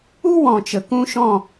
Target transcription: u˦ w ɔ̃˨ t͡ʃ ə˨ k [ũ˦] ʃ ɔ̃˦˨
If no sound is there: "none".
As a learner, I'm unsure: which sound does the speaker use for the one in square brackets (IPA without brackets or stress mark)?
ũ˦